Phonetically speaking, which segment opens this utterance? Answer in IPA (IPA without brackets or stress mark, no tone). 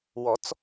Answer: w